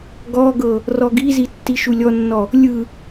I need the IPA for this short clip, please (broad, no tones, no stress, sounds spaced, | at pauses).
ɡ ɔ ɡ ɤ | r ɔ ɡ i z i tː i ʃ u lʲ ɔ nː ɔ | lʲ ɯ